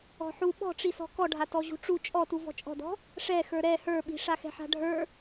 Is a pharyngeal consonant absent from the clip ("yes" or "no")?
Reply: no